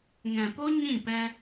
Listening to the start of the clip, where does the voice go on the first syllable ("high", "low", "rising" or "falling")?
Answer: low